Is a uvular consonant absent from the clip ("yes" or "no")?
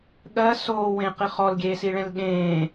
no